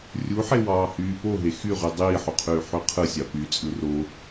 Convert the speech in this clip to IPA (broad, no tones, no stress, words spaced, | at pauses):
rʲuħe wɑːhyːpoɦe xyʁy dˤiːħuqʰyː ħyqʰɯsʲɑ py t͡sʼɯro